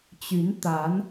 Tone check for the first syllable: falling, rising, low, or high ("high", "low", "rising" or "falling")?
rising